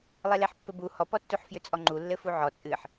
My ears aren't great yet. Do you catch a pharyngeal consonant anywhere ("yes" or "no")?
yes